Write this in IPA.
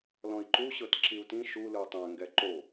l ɔ̃ i̯ ǃ u ɕ ɤ t ǁ i u̯ t ĩ ʃ u l ɯ tˤ ɛ̃ ŋ ɡ ɛ ǃ o

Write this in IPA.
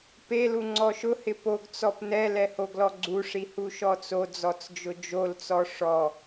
p e l u ŋ͡ǀ ɔ ʃ ʊ h ɪ p o ɡ t͡s ɔ p n ɛ l ɛ h o ɡ l ɔ ɡ͡ǀ u ʂ i h u ʃ ɔ t͡s o d͡z ɔ t͡s d͡ʒ ʊ d͡ʒ o l t͡s ɔ ʂ ɔ

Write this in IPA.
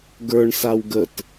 ɡ ə˞ ɳ s a w ɡ ə t

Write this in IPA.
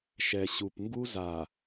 ʃ ɛ˨ ɕ u˨ p ŋ ɡ u˦ z a˨

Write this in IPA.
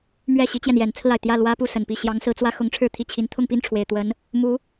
m ɥ ɛ˥˩ ɕ i˥ t͡ɕ j ɛ˨ n j ɛ˨˩ n t͡sʰ ɹ̩˥˩ a˩ ɪ̯ t̪ j ä˥˩ l w ä˥ p u˥˩ s ə˨˩ n p i˥˩ ɕ j ɑ˧˥ ŋ s ɹ̩˧˥ t͡s w ä˥ x ʊ˧˥ ŋ ʈ͡ʂʰ ɻ̩˥˧ t̪ʰ i˥˩ t͡ɕʰ i˧˥ n t̪ʰ ʊ˥˧ ŋ p i˥˩ n ʈ͡ʂʰ w e˨˩ ɪ̯ t̪ w ə˧˥ n | m u˧˥

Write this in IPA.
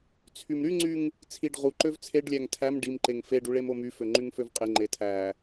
t͡sʰ y m ɾ y ŋ͡ǀ y ŋ | t͡sʰ i ɖ ʁ u ǃ ø v t͡sʰ e ɖ lʲ æ ŋ tʰ æ m ɖ i m ǃ e ŋ f e ɖ u ɭ e m o m y f ø ŋ͡ǃ y ŋ f ø v qʼ e ŋ͡ǃ e tʰ æ

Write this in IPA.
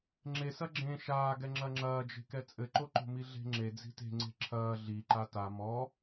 ŋ͡ǁ e s ɐ ɡ͡ǁ ẽ ʃ aː ɡ ɛ ŋ͡ǁ ɐ ŋ͡ǁ ɐː d͡ʒ e̤ k ɛ t͡sʼ ɘ ǃ o ǃ o̤ m i ɮ e̤ ŋ͡ǁ e d͡z i̤ t e̤ ŋ͡ǀ e̤ ǁʰ ɐː ɮ i ǃ a t a m ɔ

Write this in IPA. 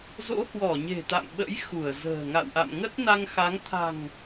z o̰˧˥ h w ɔ˧˩ ɲ e̤˨˩ t̪ a̰˧˨ m ɓ ə̰˧˥ j x u˧˩ ə̯ z ə̤ː˨˩ ŋ a̰˧˨ w ʔ a̰˧˨ m ŋ ə˦˥ t̚ n a˧ ŋ x a˨˦ ŋ t̪ʰ a̤˨˩ ŋ

